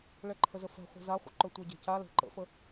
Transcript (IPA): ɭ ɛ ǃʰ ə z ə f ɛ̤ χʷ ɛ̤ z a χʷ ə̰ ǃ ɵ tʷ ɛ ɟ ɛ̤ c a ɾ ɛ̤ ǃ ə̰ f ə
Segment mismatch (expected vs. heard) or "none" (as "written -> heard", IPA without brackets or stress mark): ɾ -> l